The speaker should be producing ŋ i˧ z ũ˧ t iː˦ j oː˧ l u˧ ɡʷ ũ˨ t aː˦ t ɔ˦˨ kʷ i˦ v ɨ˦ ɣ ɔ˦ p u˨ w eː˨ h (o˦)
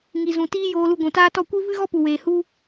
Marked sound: incorrect: u˦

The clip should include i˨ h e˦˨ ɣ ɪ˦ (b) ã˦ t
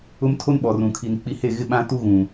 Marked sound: incorrect: ɓ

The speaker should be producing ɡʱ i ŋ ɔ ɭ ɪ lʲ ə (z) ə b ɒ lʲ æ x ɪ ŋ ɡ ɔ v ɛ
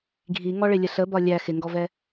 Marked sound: incorrect: ɬ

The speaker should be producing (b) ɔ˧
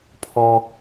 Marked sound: incorrect: pʰ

